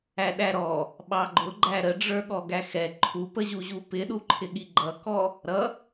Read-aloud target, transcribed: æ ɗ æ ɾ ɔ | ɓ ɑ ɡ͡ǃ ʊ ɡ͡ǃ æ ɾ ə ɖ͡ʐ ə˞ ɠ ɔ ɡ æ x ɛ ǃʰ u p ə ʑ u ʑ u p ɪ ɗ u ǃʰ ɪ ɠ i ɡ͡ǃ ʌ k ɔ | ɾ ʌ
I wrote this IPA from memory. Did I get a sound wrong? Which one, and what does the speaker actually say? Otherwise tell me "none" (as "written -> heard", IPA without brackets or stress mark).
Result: none